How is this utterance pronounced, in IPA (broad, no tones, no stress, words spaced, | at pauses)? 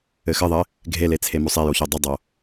ɘxɘðˤɘ | ɡʱelet͡sʰe mosˤejoço dˤudˤo